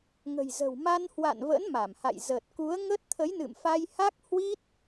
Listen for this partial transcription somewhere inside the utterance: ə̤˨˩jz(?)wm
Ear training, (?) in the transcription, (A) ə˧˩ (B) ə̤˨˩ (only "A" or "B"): B